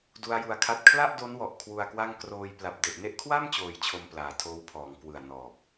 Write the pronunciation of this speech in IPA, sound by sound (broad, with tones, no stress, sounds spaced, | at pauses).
d u˦˥ a̯ j u˧ a̯ kʰ a˥˩ t̚ kʰ l a˥˩ ʔ d o˦˥ n w ɔ˨˩ ʔ kʰ w u˧ a̯ k w a˥˩ ŋ k r oː˧ j p l a˨˩ p̚ d e˨˩ ʔ n e˥˩ ʔ kʰ w a˥˩ m t͡ɕ oː˧ j t͡ɕʰ o˧ m p l aː˩˦ tʰ oː˦˥ w pʰ ɔː˩˦ ŋ k w ɯ˨˩ a̯ n ɔː˨˩ p̚